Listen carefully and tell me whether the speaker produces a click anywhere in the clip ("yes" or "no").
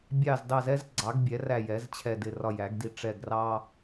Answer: yes